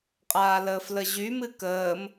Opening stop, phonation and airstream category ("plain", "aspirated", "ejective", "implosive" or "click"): ejective